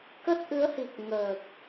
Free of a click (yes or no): yes